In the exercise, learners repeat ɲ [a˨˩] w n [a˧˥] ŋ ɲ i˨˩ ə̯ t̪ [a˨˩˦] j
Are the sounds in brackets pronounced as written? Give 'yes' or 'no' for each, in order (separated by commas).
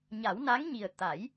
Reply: no, yes, yes